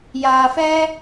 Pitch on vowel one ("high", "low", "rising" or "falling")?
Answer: low